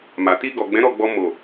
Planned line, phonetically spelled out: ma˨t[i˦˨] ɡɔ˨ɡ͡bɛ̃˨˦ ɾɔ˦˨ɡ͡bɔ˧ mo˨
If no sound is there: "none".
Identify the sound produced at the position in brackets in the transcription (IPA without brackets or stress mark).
i˧